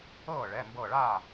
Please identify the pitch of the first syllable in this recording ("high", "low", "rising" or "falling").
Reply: falling